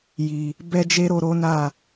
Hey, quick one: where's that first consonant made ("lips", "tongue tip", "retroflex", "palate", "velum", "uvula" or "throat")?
palate